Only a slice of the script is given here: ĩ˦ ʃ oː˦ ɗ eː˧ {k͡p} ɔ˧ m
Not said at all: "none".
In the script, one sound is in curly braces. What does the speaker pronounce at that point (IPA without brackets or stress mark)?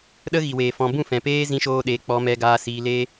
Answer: k͡p